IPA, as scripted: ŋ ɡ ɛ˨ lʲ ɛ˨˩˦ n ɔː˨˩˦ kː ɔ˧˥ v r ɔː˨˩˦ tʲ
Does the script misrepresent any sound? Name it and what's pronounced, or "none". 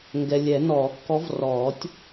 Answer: none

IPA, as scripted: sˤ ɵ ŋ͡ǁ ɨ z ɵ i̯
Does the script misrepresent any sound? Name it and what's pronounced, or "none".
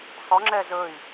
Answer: ɨ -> ɛ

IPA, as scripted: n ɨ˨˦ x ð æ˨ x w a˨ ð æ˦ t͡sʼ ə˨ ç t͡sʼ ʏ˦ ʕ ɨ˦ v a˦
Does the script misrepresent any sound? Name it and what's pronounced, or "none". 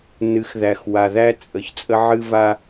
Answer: ʏ˦ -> ə˦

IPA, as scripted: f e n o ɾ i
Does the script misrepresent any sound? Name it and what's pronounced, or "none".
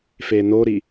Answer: none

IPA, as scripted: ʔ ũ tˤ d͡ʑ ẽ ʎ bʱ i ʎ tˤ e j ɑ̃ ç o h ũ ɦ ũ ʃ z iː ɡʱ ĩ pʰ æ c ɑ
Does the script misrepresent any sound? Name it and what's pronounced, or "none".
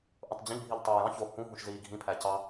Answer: none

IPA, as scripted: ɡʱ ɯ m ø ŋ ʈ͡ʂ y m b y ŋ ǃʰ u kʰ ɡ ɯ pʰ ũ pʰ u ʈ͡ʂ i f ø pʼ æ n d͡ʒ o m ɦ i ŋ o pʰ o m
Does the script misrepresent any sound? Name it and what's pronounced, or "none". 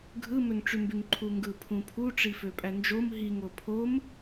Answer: kʰ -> ŋ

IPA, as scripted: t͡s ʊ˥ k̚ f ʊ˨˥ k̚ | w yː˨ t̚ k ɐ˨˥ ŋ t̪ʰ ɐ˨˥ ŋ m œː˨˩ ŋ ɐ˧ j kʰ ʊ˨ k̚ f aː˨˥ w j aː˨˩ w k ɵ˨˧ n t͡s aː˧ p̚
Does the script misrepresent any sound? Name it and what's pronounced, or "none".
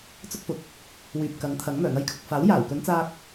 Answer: t̚ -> p̚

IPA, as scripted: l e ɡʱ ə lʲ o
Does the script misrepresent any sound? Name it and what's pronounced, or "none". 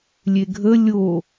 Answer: l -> lʲ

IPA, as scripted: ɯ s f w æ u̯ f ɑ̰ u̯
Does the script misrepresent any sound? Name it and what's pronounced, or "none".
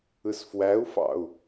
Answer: none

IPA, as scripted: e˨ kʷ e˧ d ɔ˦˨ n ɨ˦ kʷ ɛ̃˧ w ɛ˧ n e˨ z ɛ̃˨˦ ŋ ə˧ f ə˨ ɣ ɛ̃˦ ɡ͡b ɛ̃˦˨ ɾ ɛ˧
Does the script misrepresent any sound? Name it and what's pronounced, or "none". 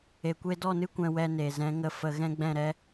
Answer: none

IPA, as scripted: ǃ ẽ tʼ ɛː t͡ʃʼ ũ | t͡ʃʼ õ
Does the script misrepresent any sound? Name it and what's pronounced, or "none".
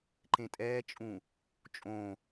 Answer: none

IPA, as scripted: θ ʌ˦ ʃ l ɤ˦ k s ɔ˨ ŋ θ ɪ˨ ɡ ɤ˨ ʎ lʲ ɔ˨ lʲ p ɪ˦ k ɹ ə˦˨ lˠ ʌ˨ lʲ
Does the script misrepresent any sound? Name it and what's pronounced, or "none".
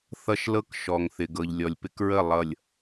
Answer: s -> ʃ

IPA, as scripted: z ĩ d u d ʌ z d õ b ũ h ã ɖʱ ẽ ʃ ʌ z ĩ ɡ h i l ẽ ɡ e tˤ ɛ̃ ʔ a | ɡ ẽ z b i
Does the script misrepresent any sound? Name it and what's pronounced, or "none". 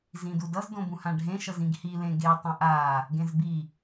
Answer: none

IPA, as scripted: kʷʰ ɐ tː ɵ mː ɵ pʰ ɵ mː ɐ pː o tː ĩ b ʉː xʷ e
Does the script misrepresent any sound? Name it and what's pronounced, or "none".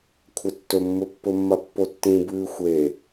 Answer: pʰ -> pː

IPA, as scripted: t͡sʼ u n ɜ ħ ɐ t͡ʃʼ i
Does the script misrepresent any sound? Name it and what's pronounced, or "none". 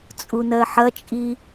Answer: none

